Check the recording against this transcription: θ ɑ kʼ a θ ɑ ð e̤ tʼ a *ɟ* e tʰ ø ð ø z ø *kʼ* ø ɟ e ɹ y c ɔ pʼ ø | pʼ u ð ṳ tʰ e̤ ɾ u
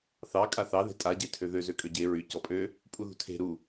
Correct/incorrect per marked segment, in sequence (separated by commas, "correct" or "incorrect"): correct, correct